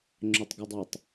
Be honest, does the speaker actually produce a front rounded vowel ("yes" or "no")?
yes